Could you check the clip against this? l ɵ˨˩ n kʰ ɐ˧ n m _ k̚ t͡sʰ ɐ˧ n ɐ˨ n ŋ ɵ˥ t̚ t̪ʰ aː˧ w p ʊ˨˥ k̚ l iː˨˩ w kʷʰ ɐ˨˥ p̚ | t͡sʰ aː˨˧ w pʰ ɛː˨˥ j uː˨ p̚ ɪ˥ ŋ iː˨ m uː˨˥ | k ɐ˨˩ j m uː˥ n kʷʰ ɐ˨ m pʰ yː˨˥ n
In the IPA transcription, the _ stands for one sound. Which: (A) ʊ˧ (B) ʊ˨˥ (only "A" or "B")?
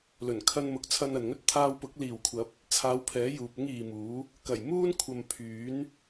B